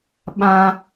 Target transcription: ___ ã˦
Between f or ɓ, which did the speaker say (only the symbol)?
ɓ